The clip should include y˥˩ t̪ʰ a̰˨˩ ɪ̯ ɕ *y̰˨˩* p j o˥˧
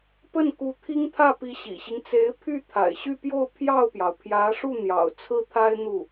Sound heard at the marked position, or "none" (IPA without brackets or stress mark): y˥˧